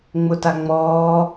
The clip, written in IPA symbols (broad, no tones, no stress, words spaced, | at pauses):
ŋ͡mʊtaŋ͡mɔː